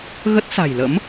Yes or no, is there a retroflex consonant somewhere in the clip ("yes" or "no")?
no